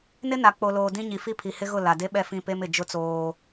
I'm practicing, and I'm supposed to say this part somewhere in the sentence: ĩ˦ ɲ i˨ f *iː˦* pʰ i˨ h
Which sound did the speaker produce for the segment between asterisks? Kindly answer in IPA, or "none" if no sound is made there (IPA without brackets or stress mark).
i˦